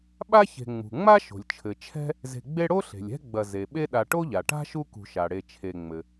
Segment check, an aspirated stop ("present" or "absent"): present